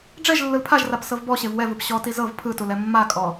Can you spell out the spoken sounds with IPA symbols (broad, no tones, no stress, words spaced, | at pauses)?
ɖ͡ʐɛʒ lːɯlpʰaʒrap sɤvbɔɕev wɛvɯp ɕɔti zɤv pʰɯtul ɛmːakʼɔ